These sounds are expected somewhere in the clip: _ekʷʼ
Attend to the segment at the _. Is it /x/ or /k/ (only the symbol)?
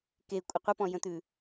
k